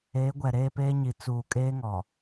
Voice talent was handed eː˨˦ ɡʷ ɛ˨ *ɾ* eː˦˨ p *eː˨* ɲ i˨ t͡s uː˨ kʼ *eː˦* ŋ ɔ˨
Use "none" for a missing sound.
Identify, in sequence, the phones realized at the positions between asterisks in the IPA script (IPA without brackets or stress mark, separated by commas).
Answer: ɾ, eː˦, eː˦